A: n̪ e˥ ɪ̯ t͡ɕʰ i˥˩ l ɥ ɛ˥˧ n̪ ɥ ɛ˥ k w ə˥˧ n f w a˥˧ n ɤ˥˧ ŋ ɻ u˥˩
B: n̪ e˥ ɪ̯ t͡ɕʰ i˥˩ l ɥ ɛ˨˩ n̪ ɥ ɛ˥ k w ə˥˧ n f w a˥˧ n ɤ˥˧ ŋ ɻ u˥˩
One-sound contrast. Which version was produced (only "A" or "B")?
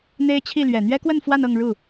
B